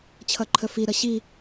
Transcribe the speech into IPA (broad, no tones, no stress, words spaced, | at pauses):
t͡ɕʰʌǃʰəfiɾʌ ɕi